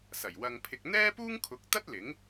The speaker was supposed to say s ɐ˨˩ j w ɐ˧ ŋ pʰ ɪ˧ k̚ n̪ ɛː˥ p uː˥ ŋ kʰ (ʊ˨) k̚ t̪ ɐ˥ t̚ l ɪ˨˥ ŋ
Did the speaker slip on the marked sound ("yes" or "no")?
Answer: yes